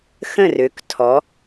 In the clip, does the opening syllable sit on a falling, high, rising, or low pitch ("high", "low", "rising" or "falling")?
falling